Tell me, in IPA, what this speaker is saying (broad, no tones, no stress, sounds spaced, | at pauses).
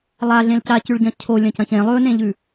lˠ a ɮ ẽ l c a c ʉ ɭ ɟ ɐ̃ cʰ o lʲ ɐ̃ c ɐ̃ ç ẽ lˠ ɵ n ẽ ʎ ʉ